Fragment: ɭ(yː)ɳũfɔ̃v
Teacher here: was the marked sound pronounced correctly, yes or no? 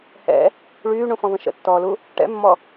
yes